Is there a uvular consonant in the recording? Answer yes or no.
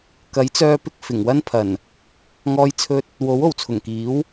no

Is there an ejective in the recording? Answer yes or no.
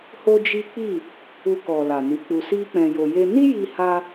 no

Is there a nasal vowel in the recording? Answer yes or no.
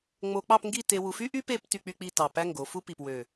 no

